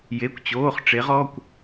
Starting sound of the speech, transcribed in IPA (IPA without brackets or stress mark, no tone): j